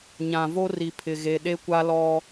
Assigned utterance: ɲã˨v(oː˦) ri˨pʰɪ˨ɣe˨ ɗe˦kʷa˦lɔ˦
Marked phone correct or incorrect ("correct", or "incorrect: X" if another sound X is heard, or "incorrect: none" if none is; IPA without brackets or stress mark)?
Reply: incorrect: o˦